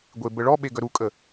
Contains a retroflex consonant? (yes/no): yes